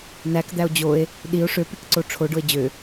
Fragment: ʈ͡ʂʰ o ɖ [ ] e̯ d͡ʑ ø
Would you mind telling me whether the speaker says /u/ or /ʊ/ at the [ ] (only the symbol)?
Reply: ʊ